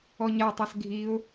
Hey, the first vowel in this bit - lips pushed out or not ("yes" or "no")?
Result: yes